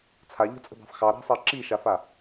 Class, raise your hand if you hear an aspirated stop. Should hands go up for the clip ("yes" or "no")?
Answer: yes